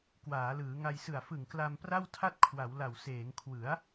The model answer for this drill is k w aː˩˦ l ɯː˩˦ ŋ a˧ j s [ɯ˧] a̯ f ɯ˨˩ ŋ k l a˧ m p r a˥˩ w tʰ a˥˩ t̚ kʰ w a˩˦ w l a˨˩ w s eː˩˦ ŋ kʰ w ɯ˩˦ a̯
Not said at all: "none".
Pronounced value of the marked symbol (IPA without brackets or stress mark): ɯ˨˩